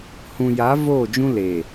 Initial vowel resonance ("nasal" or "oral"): nasal